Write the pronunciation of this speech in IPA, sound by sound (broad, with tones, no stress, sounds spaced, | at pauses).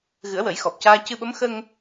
ɣ ɨ˨˩˦ ə̯ w ə˨˩˦ j x ɔ˨˩ p̚ c aː˧ c ɨ˧ ɓ ə˧˥ m x ə˧ ŋ